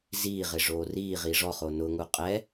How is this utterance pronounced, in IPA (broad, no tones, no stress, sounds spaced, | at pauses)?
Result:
z iː ʁ ɪ ʐ oː r iː ʁ i ʐ ɔ χ o n ʊ ŋ u qʼ ɛ